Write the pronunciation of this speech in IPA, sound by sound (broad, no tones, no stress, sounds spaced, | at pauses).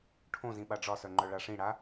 ʈʰ õ z ĩ ɓ a ɖ͡ʐ ɒ s œ ŋ͡ǃ œ ɭ a ʂ ĩ ɽ a